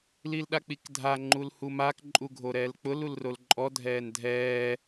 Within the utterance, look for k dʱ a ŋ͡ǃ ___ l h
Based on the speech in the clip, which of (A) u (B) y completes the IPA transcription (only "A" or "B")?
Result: A